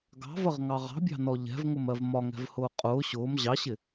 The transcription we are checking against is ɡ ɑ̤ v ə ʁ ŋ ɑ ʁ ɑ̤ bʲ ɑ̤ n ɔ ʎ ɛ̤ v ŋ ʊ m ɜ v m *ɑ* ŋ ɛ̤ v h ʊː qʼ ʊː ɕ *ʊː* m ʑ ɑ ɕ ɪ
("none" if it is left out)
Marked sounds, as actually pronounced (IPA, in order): ɒ, ʊː

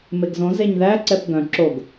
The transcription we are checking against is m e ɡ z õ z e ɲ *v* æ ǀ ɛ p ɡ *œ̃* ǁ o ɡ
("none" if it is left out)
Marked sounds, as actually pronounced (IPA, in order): ð, œ̃

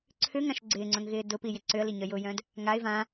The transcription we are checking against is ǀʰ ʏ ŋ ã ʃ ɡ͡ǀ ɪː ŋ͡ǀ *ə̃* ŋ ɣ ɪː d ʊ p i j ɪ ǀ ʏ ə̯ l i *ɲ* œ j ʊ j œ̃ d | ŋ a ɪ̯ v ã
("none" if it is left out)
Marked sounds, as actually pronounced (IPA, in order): œ̃, ɲ

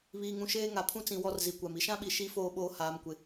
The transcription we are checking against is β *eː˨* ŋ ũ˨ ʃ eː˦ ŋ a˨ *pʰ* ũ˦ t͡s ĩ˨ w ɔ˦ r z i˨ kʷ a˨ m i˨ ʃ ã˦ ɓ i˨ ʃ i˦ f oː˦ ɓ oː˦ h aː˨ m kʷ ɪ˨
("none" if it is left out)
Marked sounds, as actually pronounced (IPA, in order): iː˨, pʰ

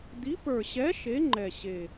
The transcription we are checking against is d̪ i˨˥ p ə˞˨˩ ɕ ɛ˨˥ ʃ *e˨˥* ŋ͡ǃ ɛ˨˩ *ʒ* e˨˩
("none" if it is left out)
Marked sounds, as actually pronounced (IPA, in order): e˨˥, ɕ

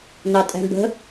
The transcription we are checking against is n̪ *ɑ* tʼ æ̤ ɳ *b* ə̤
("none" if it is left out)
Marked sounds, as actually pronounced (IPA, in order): ɑ, b

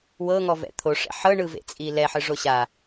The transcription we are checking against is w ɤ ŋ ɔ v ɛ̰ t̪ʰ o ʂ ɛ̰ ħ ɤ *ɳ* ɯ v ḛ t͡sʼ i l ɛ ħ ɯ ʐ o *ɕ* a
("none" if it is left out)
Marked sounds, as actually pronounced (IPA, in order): ɳ, ɕ

